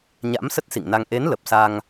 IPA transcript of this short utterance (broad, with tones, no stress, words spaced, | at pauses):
ɲa̰˧˥m sə˦˥t̚sḭ˧˨ŋna˧ŋ ʔe˨˦nlə˨˩p̚ sa˧ŋ